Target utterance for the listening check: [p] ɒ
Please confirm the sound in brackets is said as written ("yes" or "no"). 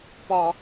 yes